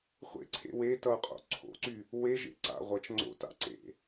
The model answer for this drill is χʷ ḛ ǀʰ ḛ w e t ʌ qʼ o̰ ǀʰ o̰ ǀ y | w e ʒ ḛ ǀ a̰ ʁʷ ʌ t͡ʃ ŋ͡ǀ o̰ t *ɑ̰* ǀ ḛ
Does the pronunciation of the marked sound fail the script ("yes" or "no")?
yes